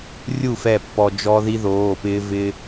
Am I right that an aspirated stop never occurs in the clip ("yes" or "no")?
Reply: yes